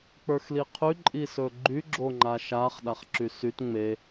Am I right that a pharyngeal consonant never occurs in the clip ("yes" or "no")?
yes